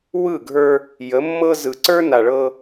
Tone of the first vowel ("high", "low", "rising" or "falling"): falling